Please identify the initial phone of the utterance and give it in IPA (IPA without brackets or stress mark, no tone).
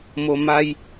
m